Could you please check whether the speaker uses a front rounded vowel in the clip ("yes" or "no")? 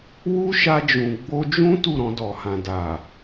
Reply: no